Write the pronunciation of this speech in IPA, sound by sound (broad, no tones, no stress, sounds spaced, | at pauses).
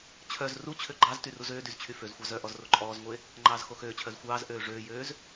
t͡ɕʰ œ z r u t͡ɕʰ ø ɡ͡ǃ ɑ z t y r u z øː d y z t͡ɕʰ y f ø z xʷ ɑ z œ ʔ ɔ z r o ǃʼ ɔː z ŋʷ e | ŋ͡ǃ ɑː z x o x øː t͡ɕʰ œ z xʷ ɑː z ʔ øː ʐ øː j øː z